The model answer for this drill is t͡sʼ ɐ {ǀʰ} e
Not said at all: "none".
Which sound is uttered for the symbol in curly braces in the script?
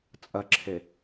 ǁʰ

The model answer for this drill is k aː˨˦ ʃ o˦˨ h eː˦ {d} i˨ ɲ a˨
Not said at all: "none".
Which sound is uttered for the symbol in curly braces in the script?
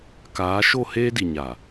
d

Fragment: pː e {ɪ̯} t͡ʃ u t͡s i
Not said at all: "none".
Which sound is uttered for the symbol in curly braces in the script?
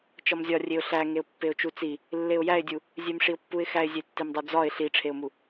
ʊ̯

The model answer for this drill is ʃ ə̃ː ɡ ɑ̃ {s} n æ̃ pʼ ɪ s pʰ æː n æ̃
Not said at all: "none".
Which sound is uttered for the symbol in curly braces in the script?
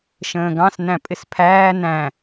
s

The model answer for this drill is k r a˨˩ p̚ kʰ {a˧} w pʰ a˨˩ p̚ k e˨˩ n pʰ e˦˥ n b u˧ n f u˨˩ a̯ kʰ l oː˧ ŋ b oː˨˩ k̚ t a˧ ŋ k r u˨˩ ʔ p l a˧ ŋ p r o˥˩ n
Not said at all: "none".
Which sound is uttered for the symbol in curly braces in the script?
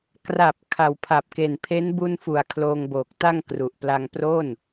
a˨˩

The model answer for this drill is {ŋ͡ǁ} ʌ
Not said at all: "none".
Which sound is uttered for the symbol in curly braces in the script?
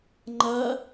ŋ͡ǃ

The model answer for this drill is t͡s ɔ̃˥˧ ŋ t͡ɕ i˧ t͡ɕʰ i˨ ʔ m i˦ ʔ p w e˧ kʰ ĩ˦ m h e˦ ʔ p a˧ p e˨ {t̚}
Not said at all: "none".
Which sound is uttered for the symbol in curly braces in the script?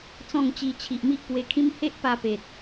t̚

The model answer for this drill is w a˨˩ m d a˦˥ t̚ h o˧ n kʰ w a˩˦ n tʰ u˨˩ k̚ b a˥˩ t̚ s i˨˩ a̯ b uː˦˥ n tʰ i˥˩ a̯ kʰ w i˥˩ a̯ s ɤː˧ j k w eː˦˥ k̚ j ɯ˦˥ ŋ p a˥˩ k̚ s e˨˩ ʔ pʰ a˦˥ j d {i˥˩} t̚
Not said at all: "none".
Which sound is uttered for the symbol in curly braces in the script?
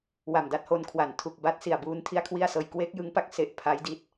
i˥˩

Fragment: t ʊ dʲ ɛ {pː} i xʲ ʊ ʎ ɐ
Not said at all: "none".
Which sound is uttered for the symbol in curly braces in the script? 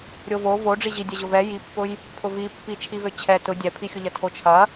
pʰ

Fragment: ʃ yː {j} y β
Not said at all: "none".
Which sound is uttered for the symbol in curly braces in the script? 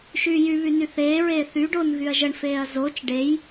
j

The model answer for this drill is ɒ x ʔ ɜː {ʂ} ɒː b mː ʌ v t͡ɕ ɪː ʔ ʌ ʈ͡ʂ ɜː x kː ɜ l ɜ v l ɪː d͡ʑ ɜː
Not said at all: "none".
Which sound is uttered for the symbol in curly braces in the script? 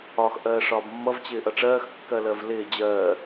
ʂ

